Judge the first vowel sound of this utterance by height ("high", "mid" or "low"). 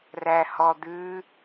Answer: low